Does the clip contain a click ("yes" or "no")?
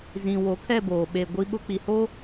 no